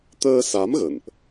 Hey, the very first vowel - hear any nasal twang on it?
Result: no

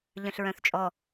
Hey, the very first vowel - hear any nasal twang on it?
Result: yes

